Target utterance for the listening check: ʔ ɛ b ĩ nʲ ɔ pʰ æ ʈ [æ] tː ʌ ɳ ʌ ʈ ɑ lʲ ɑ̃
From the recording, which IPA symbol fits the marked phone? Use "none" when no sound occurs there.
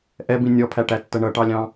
æ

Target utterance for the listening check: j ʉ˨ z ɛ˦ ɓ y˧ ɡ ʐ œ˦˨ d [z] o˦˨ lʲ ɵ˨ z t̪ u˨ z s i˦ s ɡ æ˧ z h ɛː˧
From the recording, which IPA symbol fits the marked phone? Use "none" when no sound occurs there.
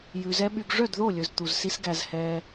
ð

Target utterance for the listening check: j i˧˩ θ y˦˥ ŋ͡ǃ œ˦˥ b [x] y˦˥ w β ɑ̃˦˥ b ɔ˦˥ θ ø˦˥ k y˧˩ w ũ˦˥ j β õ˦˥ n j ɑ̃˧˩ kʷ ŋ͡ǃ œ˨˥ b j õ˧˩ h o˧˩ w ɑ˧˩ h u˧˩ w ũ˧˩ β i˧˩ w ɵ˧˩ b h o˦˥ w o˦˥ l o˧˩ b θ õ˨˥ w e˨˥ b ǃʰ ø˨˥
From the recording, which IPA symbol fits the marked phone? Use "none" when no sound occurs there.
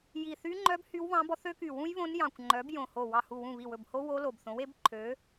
h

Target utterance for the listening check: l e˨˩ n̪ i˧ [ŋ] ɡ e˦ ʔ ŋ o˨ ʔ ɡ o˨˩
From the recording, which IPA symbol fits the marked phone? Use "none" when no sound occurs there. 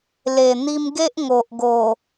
m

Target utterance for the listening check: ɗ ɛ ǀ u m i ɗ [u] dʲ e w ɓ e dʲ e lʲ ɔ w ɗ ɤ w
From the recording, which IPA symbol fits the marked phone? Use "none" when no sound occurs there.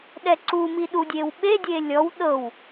u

